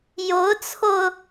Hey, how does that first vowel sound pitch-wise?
rising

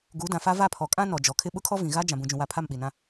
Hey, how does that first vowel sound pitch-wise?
rising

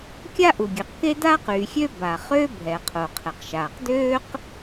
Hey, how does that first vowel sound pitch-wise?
high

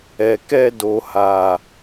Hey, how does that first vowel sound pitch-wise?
low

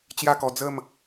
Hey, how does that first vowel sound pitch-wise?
falling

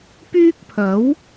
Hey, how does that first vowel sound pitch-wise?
high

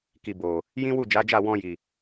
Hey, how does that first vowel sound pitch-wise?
low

